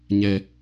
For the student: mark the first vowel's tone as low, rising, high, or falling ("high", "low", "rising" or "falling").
low